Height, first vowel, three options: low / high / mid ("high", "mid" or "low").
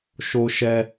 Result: mid